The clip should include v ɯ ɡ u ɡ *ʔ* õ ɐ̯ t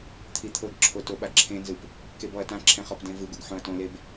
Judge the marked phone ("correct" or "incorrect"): incorrect